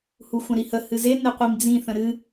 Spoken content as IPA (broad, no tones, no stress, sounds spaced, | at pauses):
h u xʷ ã ɾ i h ə h ɨ z e n e qʷ i m d͡z ĩ θ ə̃ ɾ ɨ